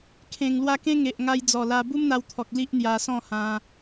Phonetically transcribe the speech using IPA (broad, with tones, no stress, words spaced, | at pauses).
kʰẽ˨˩ŋlwa˧ kẽ˦ŋe˨ʔŋa˧j d͡zɔ˨˩la˧ bu˦mn̪a˧wt̪ʰɔ˨k̚ li˦ʔn̪ja˧sɔ̃˥˧hã˧